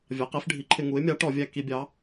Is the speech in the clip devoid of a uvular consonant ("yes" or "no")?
no